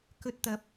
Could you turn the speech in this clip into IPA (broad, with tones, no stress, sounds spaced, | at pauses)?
k ɵ˧ t̚ t̪ ɐ˨ p̚